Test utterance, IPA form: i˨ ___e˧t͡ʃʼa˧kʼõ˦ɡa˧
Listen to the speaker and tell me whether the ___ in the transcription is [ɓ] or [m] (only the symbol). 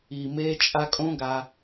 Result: m